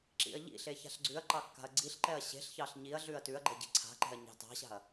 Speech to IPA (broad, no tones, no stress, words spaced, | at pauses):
ǁḭɐ̯ʎḭɬe ça̤ɬɡ͡ǀʉɐ̯ǃɑ kːa̤ɐ̯ɡ͡ǀiɬǃɛɐ̯ ɕe̤ɬçɑɬ ɲiɐ̯ɮʉɐ̯ tʉɐ̯ɡ͡ǃɛ ɟe̤ǀʰa̤ǃɛ̤ɐ̯ ɲɑ̤tɑ̤ɕa̤ɐ̯